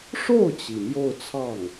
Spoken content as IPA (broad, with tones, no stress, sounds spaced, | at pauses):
ʂ o˥˩ ʊ̯ t͡ɕ i˩ m j o˥˧ ʊ̯ t͡sʰ ɑ˥˩ ŋ